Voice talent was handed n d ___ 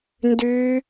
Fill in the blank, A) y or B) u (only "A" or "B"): A